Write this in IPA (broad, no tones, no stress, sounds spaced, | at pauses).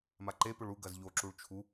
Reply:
m a ǃ e p ɵ ɭ u ɡ ɐ z ʎ o ǁ u ɭ t͡ʃʰ u